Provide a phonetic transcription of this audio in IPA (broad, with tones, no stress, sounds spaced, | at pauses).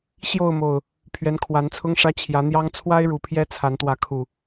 ɕ j o˥˨ ʊ̯ m o˨˩ ʊ̯ | pʰ ɥ ɛ˨˦ n kʰ w a˨˦ n t͡sʰ ʊ˦ ŋ ʂ ä˦ t͡ɕʰ j ä˨˦ n̪ j ɑ˦ ŋ t͡sʰ w a˦ ɪ̯ ɻ u˨˩ pʰ j ɛ˦ t͡sʰ a˨˦ n t̪ w ä˨˦ kʰ u˨˩